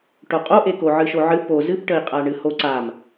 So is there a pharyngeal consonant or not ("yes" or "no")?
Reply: yes